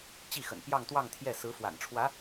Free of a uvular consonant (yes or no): yes